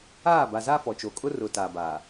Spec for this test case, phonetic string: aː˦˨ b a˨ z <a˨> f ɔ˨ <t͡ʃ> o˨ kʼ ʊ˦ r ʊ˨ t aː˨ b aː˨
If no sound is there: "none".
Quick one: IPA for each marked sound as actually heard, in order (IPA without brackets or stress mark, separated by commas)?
a˦, t͡ʃ